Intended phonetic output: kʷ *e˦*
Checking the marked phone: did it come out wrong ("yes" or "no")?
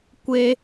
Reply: no